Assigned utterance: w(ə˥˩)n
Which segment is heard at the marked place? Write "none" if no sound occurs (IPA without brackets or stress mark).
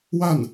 a˥˩